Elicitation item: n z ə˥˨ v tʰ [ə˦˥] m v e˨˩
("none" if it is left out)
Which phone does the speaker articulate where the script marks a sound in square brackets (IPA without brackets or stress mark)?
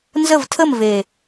ə˥˨